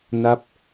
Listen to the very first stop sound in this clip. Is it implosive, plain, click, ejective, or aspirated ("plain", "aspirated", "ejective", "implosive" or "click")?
plain